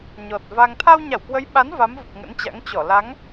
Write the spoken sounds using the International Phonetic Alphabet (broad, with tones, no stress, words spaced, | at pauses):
ɲɔ˨˩t̚va˧ŋ t̪ʰa˧wɲa˧˩wkwə˨˦jɓa˨˦n va˨˦mvə˨˩p̚ ŋə̰˧˥nt͡ɕa̰˧˥ŋ t͡ɕɔ˧˩ la˨˦ŋ